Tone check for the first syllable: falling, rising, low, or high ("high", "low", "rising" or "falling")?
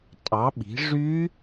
rising